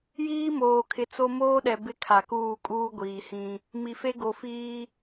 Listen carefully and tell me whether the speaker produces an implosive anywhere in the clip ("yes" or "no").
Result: yes